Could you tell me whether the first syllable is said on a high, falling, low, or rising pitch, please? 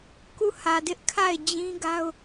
falling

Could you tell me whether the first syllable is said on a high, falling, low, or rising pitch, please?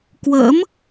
rising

